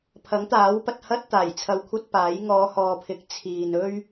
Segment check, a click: absent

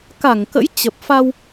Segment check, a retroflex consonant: absent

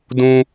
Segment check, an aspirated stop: absent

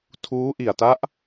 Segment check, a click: absent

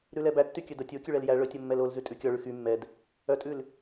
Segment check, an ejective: present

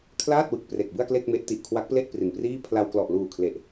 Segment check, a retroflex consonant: absent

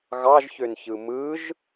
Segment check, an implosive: absent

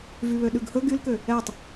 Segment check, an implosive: present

